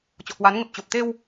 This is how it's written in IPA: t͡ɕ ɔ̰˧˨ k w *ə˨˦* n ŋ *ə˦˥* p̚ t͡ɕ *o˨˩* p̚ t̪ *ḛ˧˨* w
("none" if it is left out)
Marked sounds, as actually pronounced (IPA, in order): a˨˦, ə˨˩, o˨˩, e˧

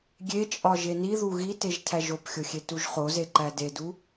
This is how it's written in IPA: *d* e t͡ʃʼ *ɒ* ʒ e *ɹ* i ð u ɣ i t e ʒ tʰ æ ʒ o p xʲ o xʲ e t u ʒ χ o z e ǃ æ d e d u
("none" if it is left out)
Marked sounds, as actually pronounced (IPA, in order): ɡʲ, ɒ, n

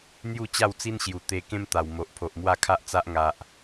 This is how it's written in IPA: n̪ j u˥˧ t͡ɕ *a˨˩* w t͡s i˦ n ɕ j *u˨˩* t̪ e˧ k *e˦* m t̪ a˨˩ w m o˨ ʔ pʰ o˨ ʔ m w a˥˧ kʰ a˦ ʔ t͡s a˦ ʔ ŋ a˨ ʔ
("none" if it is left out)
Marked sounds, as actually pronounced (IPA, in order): a˥˧, u˨˩, ẽ˦

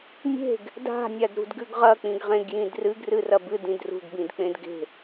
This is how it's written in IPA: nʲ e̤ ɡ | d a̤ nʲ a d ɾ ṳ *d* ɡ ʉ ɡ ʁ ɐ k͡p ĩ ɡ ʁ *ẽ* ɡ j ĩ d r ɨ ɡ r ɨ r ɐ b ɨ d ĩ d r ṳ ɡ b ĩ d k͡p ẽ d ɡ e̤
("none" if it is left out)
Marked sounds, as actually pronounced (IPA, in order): d, ẽ

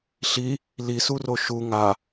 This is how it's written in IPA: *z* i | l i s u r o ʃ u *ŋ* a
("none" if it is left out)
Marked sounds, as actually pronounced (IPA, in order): ɬ, ŋ

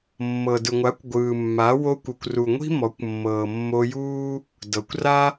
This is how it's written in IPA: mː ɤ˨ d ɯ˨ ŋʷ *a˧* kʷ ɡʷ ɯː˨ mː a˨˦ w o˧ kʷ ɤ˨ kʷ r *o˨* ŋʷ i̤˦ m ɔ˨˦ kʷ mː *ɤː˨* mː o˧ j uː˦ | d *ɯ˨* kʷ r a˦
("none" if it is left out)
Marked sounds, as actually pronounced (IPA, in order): a˨˦, u˨, ɤː˨, ɤ˨

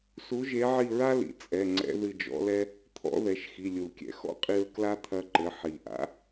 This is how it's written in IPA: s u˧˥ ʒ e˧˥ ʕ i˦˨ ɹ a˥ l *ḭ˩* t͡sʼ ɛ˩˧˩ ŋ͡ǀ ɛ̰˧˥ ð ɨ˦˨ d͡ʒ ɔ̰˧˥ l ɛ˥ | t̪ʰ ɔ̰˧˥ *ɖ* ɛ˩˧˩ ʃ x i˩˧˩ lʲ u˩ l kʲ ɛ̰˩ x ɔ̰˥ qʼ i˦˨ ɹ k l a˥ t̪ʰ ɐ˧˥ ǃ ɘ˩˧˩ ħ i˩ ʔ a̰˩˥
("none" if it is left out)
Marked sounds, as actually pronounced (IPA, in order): ḭ˩, ð

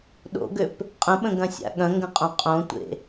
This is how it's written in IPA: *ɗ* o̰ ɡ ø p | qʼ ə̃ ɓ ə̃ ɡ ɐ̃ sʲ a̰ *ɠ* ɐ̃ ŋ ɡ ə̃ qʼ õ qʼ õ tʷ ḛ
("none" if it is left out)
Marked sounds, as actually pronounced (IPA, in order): ɗ, ɠ

